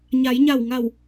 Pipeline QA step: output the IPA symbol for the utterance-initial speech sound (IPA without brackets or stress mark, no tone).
ɲ